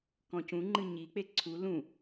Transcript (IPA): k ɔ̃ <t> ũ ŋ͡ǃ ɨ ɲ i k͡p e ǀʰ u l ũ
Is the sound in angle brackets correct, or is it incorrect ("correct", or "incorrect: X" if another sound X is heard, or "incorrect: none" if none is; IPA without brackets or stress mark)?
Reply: incorrect: c